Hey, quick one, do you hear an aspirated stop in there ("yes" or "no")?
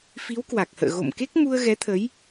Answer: yes